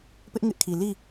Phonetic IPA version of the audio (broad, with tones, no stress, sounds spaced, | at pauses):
p ɪ˦ ʔ ŋ ɪ˦ ʔ kʰ i˨ l i˦˨